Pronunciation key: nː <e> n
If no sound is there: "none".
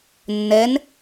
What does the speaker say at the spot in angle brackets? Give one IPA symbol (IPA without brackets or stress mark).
ɛ